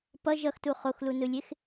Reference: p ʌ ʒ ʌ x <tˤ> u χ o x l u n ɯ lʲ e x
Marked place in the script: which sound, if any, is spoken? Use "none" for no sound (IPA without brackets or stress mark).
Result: t